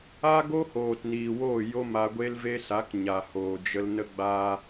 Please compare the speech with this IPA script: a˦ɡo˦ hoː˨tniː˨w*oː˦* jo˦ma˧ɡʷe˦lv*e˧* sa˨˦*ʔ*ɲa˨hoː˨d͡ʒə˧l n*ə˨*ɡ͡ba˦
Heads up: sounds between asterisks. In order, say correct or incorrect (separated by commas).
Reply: incorrect, incorrect, incorrect, incorrect